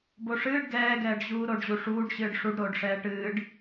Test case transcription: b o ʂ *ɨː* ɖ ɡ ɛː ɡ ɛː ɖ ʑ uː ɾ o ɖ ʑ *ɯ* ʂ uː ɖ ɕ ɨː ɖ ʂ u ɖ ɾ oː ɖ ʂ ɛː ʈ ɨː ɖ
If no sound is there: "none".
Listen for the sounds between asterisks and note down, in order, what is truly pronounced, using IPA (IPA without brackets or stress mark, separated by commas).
ɨː, u